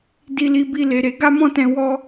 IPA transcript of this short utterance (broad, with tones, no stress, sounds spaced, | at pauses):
d i˧ l i˧ b i˧ l e˧ ɾ e˧ ɡ a˦ m ɔ̃˦ t ɛ̃˧ w ɔ˦